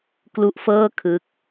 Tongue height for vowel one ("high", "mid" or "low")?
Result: high